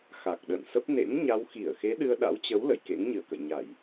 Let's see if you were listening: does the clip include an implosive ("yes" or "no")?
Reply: yes